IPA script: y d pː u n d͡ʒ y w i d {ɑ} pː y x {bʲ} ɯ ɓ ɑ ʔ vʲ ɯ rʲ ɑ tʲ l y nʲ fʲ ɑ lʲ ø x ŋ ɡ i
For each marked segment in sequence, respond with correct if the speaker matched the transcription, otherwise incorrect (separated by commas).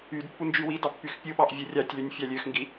correct, incorrect